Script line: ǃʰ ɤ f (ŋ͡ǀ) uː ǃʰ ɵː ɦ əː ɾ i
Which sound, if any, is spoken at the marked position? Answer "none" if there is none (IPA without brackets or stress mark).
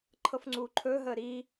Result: ŋ͡ǀ